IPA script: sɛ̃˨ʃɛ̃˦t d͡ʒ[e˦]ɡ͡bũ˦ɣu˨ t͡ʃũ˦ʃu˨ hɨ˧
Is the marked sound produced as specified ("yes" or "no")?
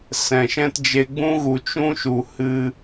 no